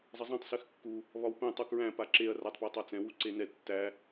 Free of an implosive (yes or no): yes